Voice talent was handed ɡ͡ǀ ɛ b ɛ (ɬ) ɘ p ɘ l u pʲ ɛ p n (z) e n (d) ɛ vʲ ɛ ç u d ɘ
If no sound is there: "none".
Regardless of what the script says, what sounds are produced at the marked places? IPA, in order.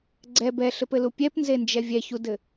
ɬ, z, d͡ʒ

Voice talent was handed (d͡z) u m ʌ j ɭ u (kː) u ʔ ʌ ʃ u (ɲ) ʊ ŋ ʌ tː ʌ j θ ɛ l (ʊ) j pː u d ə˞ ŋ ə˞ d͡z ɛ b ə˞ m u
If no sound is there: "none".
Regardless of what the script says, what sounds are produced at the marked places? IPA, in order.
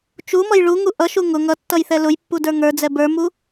t͡ʃ, ŋ, ŋ, ʊ

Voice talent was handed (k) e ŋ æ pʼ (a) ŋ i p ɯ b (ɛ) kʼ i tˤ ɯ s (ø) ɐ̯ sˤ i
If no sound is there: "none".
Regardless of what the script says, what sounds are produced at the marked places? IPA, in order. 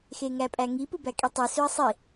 x, æ, æ, ø

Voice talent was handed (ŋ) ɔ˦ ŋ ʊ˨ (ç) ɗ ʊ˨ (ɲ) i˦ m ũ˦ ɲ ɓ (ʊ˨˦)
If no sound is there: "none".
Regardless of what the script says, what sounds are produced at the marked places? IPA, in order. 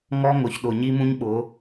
ŋ, ç, ɲ, ʊ˨˦

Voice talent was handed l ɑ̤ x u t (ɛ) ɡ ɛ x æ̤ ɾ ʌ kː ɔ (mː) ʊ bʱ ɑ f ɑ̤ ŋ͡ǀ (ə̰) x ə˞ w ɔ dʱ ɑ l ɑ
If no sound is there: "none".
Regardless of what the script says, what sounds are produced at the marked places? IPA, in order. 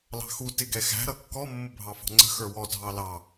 ɪ, mː, ə̤

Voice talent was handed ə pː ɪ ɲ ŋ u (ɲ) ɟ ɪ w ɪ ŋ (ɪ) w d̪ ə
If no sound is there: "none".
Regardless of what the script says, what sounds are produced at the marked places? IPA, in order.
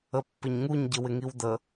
ɲ, i

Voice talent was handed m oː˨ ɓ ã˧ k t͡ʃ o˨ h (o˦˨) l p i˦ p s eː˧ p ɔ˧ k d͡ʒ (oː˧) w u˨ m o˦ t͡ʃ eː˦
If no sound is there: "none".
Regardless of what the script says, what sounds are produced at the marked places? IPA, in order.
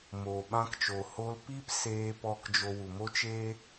o˧, o˧

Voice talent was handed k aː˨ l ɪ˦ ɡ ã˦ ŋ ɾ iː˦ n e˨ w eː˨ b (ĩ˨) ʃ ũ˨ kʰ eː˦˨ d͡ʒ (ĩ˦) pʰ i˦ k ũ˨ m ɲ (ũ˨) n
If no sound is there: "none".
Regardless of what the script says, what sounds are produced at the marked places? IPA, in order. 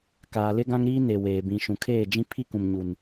ĩ˨, ĩ˦, u˨

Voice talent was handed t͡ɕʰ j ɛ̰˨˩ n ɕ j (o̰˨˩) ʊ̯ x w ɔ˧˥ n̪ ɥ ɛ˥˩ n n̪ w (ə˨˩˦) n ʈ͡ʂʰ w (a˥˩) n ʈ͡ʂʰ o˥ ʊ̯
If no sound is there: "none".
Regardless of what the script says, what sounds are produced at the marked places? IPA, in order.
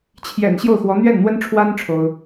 o˥˩, ə˥, a˥

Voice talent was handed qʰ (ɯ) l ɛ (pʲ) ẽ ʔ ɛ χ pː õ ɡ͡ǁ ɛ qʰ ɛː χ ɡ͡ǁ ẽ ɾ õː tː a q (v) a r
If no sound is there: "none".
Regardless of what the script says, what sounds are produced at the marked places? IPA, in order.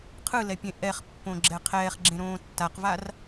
ɯ, pʲ, v

